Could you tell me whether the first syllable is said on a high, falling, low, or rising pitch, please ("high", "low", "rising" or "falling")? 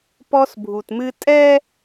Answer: high